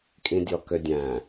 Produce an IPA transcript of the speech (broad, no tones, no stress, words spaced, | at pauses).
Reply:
kʼĩdʲɔkødʲæ̃